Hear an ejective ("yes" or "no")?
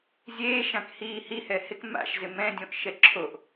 no